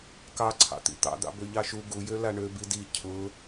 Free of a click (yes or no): no